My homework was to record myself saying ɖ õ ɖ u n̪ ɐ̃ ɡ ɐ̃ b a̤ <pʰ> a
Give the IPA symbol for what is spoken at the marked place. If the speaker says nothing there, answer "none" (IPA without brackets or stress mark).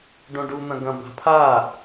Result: pʰ